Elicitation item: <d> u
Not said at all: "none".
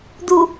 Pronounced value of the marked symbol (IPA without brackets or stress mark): d